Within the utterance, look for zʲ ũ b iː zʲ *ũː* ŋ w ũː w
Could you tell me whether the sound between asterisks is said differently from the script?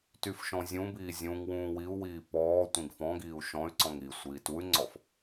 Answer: yes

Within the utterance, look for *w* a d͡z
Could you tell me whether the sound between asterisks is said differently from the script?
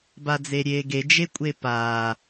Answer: yes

